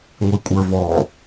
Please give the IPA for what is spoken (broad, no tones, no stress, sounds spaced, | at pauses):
ŋʷ i kʷʼ ə˞ v ɔ